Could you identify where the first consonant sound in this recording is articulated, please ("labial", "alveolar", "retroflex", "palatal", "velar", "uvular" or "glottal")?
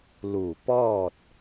alveolar